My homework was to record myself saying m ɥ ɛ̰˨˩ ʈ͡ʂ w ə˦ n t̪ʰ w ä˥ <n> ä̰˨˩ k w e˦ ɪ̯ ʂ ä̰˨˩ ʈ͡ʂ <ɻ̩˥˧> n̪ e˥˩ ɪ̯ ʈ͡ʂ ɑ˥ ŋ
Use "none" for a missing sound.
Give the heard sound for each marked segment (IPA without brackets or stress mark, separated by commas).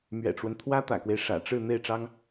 t̪, ɻ̩˥˧